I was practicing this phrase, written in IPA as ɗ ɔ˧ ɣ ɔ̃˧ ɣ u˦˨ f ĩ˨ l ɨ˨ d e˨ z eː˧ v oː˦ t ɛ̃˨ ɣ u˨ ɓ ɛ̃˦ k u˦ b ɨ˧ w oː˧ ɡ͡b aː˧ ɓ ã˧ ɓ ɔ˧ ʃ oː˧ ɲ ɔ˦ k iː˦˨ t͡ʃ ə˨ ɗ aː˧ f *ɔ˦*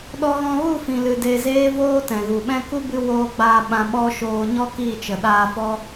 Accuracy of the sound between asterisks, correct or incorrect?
correct